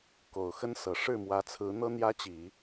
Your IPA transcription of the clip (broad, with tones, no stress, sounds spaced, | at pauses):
k o˨˩ ʊ̯ x ə˥ n s ɤ˨˩ ʂ ɻ̩˥˩ m w ä˧˥ t͡sʰ ɹ̩˧˥ n̪ ɤ˥ n̪ j ä˥ t͡ɕ i˨˩˦